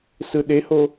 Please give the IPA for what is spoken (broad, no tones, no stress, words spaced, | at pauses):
sɯɗeho